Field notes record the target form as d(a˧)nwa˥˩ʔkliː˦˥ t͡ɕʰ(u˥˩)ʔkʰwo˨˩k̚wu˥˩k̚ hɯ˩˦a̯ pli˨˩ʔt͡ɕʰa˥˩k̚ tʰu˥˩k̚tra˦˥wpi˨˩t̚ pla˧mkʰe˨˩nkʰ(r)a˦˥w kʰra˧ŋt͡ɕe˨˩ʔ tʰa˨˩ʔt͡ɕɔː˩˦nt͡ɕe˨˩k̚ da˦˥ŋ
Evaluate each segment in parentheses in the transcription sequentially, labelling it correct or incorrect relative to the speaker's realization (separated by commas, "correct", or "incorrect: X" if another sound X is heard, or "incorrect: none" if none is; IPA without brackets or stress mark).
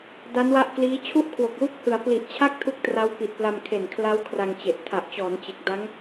incorrect: a˦˥, correct, incorrect: l